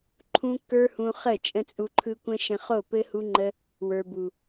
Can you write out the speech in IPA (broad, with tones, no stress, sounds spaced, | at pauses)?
ǃʰ ũ˦ kː ə˞˦ h ũ˧ χ ə˦˨ t͡ʃʼ ə̃˦ t͡sʼ u˧ ǃʰ ɯ˦ kʷ ə̃˦ ʃ ə̃˧ χ o˦˨ p ɘ˦ h u˦ ŋ͡ǃ ə˦ | w ə˞˨ b u˨